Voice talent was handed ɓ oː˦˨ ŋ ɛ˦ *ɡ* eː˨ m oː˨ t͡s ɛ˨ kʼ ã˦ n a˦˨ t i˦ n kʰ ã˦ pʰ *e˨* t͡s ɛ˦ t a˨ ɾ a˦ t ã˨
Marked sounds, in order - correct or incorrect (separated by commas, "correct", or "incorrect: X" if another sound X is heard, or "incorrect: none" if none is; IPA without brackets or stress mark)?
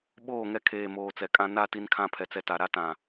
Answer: incorrect: kʰ, incorrect: ɛ˨